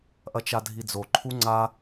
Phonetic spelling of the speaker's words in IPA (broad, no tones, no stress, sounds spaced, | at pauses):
ʔ ɐ t͡ʃ a dʱ i d͡z o ǃʰ u ŋ͡ǀ a